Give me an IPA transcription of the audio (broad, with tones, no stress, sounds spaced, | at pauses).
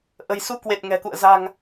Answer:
ʔ ə̤˨˩ j s u˧ k w e˨˩ t̚ ŋ ɛ̤˨˩ k ṵ˧˨ ə̯ z a̤˨˩ ŋ